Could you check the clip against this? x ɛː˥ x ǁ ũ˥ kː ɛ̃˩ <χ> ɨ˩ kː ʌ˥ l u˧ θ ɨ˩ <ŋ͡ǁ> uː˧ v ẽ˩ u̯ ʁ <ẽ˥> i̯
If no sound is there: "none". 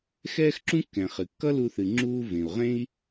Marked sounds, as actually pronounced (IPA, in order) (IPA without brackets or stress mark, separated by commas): χ, ŋ͡ǁ, ẽ˥